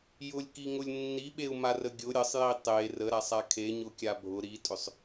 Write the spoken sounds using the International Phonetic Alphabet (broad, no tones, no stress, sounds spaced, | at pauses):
j ʊ lʲ k i ŋ ʊ lʲ nː i ɓ e u̯ m a r ə ɡʲ ʊ ɾʲ ə sˤ j i tˤ e r ə ɾ a sˤ a kʰ e ɲ ʊ kʲ a bʱ ʊ ɾ i tʼ ʏ sˤ